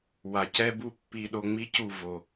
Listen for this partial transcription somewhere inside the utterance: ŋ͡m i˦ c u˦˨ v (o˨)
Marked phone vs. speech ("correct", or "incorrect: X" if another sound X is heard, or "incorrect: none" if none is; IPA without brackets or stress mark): correct